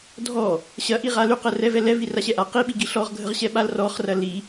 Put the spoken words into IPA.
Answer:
dʱ ɔ | ɕ ɐ ʔ i ʁ a l y q ə r ɛ v ɛ l ɛ v i r a ɕ ɛ ʔ a q i ɓ i ɡ i ɬ ɔ ʁ ɡʱ ə ʁ ɕ ɛ ɓ a l r ɔ χ r ɐ l i

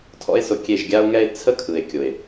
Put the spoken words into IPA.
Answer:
tʰ ɔ̰˦ e̯ s ʊ˧ kʲ e˦˨ ʒ ɡʲ a˦ o̯ ŋ ɛ˦ e̯ t͡sʰ ə˦ kʰ ɯ˨ e̯ kʲ ʊ˨ e̯

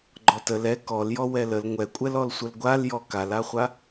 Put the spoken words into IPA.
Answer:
ɡ͡ǃ ɔ t ə l ɛ k ɔ l j ɔ w ɛ l ə l ŋʷ ɛ kʷʼ ɛ l ɔ l sʷ ə l ɡʷ a l j ɔ k a l a χʷ a

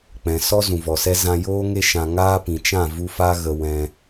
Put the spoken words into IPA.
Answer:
k͡p ɛ̃˨ s ɔ˦ z ũ˨ v ɔ˨ s ɛ˦ z ã˧ j oː˦ ŋ e˧ ʃ ã˨ ŋ aː˦ p ĩ˨ t͡ʃ ã˦˨ v u˧ f a˦ ɣ ə˧ w ɛ̃˧

